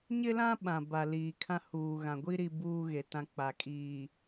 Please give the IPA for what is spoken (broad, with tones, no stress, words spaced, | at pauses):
ɲɪ˦lã˦ ɓã˨ba˨ liː˨kʰã˦ huː˨ ɣã˨ɡʷi˦ ɾi˨ buː˦ɣe˨tã˦ k͡pa˨ kʼiː˨